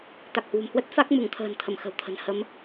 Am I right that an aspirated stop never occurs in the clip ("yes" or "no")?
no